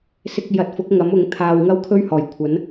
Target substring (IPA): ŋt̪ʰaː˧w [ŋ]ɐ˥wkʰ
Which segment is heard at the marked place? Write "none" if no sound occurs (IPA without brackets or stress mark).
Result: ŋ